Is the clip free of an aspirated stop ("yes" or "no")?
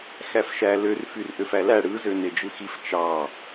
yes